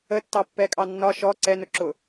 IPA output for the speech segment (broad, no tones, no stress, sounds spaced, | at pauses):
ə tː ɑ pː ɛ kʼ ɑ nː ɒ ʃ ɔ ǀ ɛ n ʊ ǁ ʊ